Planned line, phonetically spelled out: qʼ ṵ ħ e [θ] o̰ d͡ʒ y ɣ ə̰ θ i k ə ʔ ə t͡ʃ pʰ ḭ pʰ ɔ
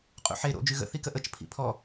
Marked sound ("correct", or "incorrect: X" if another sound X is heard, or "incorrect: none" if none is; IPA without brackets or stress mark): incorrect: ɾ